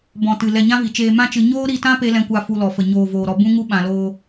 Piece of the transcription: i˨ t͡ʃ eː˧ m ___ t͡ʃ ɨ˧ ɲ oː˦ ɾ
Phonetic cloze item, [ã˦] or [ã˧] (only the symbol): ã˦